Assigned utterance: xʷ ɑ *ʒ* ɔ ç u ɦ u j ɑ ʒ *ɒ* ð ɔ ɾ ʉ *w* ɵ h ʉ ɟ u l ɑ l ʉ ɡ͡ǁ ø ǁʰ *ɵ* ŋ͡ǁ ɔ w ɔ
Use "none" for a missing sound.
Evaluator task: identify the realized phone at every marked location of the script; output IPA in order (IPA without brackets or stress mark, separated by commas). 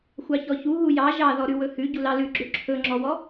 ç, ɑ, w, ɵ